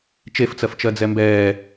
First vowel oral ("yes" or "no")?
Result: yes